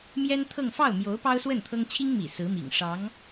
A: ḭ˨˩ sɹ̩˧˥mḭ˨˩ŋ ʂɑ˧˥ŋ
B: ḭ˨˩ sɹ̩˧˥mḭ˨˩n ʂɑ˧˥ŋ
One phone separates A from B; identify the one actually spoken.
A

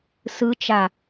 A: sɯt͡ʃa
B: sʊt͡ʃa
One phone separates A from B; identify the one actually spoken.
A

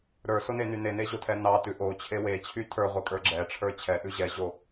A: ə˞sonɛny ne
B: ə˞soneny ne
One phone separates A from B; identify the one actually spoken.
B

